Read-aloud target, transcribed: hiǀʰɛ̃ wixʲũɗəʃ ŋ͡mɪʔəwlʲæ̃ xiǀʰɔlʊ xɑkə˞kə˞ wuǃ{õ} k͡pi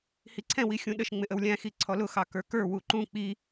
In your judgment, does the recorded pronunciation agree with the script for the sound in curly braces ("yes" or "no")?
no